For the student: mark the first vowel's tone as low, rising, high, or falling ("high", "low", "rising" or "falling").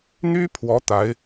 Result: high